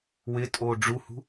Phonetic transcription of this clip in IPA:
w ɪ tʼ o ɖ͡ʐ u h ṳ

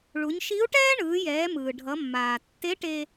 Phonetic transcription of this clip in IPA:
ɭ u˩˧ ɲ ʃ i˧˥ u̯ ʈ ɛː˥ ɳ ɯː˩˧ j ɛː˩˧ m ɯː˩ ɖʱ ʌ˩˧ mː aː˩ tː e˧˥ ʈ e˧

